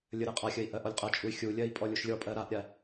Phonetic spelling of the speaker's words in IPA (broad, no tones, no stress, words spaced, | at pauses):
lʲəɾɜqʼaxʲəi̯ ʔɜʔɔlʲqʼɐt͡ʃʼuy̯ xʲulʲɜi̯ pʼɔlʲuʃlʲɔpʼɜ ɾaʔɾʲa